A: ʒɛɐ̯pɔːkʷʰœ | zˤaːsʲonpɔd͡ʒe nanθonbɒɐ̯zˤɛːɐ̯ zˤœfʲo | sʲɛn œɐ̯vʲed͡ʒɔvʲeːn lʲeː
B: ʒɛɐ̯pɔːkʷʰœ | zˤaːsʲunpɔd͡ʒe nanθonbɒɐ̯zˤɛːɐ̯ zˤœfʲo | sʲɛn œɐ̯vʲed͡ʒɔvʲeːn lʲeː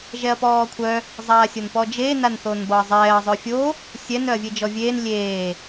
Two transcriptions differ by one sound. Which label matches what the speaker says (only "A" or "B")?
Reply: A